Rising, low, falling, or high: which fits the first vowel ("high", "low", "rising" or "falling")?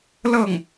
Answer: falling